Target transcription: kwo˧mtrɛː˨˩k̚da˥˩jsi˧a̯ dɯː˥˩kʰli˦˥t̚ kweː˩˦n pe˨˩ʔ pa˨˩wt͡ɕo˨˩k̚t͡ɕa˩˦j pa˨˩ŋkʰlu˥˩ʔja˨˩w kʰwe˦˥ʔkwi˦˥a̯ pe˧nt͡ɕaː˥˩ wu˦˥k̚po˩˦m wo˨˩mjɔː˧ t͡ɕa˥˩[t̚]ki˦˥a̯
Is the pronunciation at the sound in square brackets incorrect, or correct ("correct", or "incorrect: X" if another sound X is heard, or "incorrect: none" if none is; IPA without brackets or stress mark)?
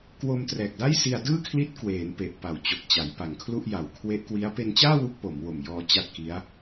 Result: correct